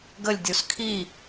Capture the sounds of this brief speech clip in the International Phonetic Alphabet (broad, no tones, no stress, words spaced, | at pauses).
ɡəlʲdʲus kʰi